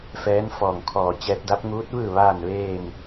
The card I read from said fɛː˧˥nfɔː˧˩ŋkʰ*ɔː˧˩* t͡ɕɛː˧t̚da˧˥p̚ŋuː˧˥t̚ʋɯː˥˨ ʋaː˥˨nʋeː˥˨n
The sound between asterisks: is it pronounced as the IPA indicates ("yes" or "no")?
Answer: yes